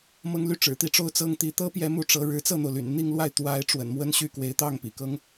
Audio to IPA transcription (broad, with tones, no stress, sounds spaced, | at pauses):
m ɤ˥ ŋ l y˥˩ ʈ͡ʂ ɻ̩˨˩ t̪ i˥˩ ʈ͡ʂ o˥ ʊ̯ t͡s ɤ˥ ŋ t̪ i˧˥ t̪ ɤ˥ p j ɛ˧˥ m u˥˩ ʈ͡ʂ ɤ˧˥ ɻ ɻ̩˧˥ t͡s ɤ˥˩ n̪ o˩ ʊ̯ l y̰˨˩ n n̪ i˥˧ ŋ l w a˥˩ ɪ̯ t̪ w a˧˥ ɪ̯ ʈ͡ʂ w ə̰˨˩ n m w ə˥ n ɕ y˥˩ k w e˧˥ ɪ̯ t̪ ɑ˥˩ ŋ p ḭ˨˩ k ɤ˥ ŋ